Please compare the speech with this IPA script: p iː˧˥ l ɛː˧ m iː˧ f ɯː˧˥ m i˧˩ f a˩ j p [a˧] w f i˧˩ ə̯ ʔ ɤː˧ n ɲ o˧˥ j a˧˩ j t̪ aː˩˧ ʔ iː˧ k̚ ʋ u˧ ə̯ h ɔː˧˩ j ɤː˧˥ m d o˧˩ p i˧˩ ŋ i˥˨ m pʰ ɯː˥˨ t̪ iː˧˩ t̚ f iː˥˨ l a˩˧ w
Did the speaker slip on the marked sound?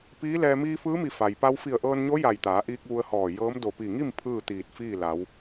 no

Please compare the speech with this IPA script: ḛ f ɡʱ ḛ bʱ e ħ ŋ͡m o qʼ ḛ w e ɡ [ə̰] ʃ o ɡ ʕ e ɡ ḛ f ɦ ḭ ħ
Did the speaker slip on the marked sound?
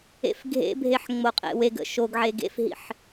no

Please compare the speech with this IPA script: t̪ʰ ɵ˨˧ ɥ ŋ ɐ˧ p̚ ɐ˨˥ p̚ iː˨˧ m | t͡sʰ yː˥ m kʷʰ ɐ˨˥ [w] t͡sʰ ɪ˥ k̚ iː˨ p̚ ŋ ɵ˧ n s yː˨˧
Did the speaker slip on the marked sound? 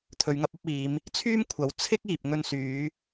no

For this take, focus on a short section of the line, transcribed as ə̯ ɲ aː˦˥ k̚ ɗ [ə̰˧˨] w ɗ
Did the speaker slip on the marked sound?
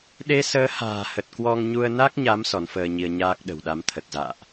yes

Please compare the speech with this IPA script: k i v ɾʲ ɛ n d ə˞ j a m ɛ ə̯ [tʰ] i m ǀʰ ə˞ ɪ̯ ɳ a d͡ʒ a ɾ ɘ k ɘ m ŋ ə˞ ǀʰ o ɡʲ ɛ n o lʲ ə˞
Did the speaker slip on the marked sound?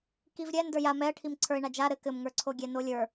yes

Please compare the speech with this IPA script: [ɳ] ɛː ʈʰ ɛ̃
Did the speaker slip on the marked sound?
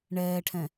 no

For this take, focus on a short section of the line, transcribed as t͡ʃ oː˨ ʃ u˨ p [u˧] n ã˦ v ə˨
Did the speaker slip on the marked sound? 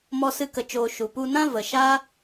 no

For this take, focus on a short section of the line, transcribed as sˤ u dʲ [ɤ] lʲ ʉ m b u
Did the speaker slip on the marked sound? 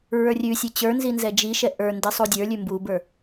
yes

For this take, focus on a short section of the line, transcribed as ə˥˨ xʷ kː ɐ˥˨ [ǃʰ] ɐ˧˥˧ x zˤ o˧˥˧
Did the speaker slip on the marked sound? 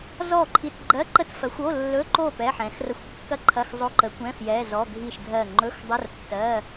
no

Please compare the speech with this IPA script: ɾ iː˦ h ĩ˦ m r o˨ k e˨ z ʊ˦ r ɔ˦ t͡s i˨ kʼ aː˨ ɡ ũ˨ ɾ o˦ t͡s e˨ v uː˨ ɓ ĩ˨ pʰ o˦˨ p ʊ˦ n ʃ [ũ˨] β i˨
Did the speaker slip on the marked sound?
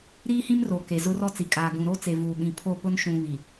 no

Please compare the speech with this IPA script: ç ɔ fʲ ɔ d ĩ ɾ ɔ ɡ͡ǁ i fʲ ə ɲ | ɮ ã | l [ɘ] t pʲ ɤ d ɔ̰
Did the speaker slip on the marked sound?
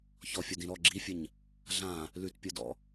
yes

